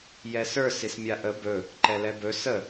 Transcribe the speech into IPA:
j ɛ s ə˞ s i s mʲ a ʔ ə b ɵ | ǃ ɛ l ɛ b ɵ s ə

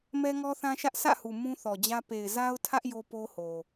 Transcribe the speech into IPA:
m ɛ˦ ŋ ɔ˦ θ ã˦ ʃ ä˦ ʔ sʰ ä̰˦˨ h u˨ m ũ˦ θ ɔ˨ d͡ʑ ä˦ p e˨ ɪ̯ z a˦ ʊ̯ tʰ ä˦ ʔ j o˦ p o˦ h o˨

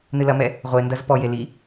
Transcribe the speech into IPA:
n ɨ l ɐ m ɛ | ʁʷ e n d ɐ z p ɔ j e l i

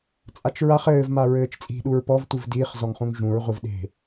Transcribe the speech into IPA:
t͡sʼ a t͡ʃ ɹ a χ ɘː v m a ɹ ɘː t͡ʃ t͡sʼ i̤ ɗ u ɹ p ɔ v tʷ ɨ v d iː χ z ɔ ŋ χ ũ ŋ ʒ ũ ɹ ʁʷ ɨ v ɗ e̤

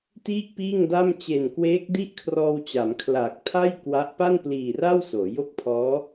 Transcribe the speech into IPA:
t iː˥˩ k̚ p iː˥˩ ŋ d a˥˩ m t͡ɕ e˨˩ n k w eː˦˥ k̚ d i˥˩ ʔ kʰ r ɔː˧ w t͡ɕ a˩˦ m kʰ l aː˨˩ k̚ tʰ a˥˩ j k w a˦˥ ʔ p a˥˩ n p l iː˨˩ r a˥˩ w s oː˩˦ j o˥˩ k̚ pʰ ɔː˦˥

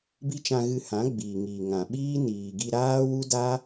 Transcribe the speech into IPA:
b i˦ t͡ʃ ã˧ ɣ ɨ˧ h ã˨˦ ɡ͡b iː˨ ŋ iː˨ ŋ ã˨ ɓ iː˦ n iː˨ ɡ i˧ ɾ aː˦ w u˦ d a˦

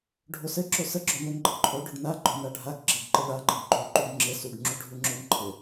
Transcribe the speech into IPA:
ɖʱ o s ɘ ǁ o s ə ɡ͡ǁ o n o n ɡ͡ǃ ɘ ǃʰ o ɖ o ɖ n a ɡ͡ǃ ɔ n a ɖʱ a ɡ ɡ͡ǁ ɘ ɡ ǃ ɘ ɭ a ŋ͡ǃ ə ɡ ɡ͡ǃ o ǃ u ɡ ŋ͡ǁ ɘ s u ɡ ŋ͡ǁ u ɖʱ u ŋ͡ǁ o n ǃʰ ɘ

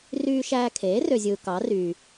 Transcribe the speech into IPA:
r yː˧ ʃ æː˧ kʰ eː˩˥ r ø˧ zʲ ɯː˧ k ɑ˩˥ r yː˩

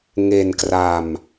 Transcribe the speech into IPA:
ŋ e˧ n k r a˧ m

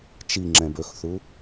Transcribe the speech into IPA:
t͡ʃ i ŋ͡ǁ ɛ̃ b ɵ x θ u

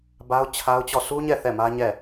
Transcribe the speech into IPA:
b a˦ ʊ̯ t͡ɕʰ a˦ ʊ̯ t͡ɕ ɔ˦˨ s u˦ ɲ ɛ˦˨ θ ɛ˦˨ m ä˦ ɲ ɛ˦˨

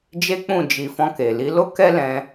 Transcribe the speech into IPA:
d͡ʒ e˦ k͡p ũ˦˨ d͡ʒ i˨ f ɔ̃˧ k e˨ l i˨˦ l o˦ k ɛ˦ l ɛ̃˧

